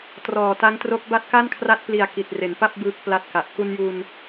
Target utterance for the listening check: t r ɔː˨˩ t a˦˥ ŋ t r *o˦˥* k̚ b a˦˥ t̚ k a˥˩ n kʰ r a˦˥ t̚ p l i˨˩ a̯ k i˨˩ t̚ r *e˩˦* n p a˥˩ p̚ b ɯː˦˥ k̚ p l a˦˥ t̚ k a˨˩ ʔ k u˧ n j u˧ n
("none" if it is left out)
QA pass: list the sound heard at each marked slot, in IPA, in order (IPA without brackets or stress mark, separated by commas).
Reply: o˦˥, e˩˦